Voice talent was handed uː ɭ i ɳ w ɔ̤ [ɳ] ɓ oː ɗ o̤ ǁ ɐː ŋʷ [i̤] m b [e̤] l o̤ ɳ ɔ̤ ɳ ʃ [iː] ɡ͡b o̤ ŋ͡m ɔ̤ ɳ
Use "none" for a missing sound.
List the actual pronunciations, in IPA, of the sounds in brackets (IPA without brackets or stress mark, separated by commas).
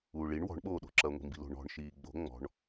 ɳ, i̤, i̤, iː